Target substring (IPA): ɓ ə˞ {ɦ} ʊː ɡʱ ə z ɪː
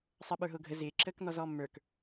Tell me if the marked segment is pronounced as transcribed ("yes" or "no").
yes